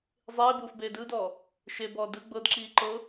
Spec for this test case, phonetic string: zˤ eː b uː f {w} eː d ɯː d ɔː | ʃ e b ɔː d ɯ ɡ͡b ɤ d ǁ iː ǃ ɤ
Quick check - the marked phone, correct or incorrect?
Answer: incorrect